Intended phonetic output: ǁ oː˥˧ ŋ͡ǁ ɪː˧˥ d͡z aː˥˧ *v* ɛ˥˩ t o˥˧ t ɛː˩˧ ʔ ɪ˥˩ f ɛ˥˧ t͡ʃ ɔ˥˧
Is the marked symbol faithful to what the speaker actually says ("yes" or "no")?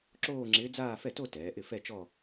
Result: no